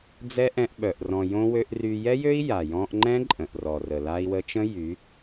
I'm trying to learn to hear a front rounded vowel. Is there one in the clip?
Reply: yes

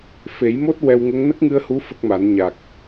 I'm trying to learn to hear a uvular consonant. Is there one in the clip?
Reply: no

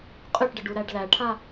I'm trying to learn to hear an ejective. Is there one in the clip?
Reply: yes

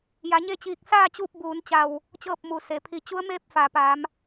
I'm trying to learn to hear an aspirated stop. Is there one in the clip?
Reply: yes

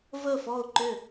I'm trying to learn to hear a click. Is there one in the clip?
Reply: yes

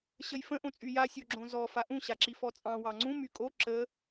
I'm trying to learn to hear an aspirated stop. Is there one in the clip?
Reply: no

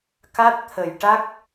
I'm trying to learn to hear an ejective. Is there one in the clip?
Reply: no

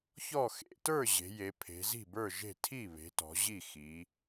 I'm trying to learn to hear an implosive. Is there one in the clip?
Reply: no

